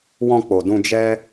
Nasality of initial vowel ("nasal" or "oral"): nasal